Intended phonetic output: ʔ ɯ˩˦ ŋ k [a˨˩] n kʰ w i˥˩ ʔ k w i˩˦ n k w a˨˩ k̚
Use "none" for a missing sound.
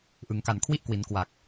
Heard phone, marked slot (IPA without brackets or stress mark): a˨˩